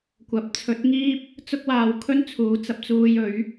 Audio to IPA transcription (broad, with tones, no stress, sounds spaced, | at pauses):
kʷ ɐ˨˥ p̚ t͡sʰ ɵ˨˥ t̚ ŋ iː˥ p̚ | t͡s ʊ˧ k̚ w aː˨ w kʰ ɵ˥ n t͡sʰ uː˨˧ t͡s ɐ˧ p̚ t͡s uː˧ j ɵ˨˥ ɥ